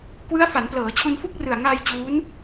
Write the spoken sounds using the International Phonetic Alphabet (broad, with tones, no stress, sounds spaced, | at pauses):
k w ɯ˦˥ a̯ f a˩˦ n p l ɤː˩˦ t͡ɕʰ u˧ n f u˥˩ k̚ r ɯ˨˩ a̯ ŋ aː˧ j t͡ɕ uː˦˥ n